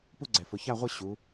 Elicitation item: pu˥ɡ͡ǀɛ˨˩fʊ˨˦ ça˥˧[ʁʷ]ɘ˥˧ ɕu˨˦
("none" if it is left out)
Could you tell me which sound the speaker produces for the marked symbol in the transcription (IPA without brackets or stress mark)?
ʁʷ